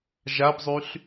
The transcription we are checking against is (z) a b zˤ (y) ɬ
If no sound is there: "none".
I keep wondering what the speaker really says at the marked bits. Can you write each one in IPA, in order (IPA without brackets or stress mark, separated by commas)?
ʒ, y